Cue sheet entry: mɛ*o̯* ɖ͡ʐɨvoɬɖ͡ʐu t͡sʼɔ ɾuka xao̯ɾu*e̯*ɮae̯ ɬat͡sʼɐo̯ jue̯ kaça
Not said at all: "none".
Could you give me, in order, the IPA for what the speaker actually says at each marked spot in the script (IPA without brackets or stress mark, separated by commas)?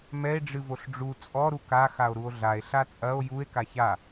e̯, o̯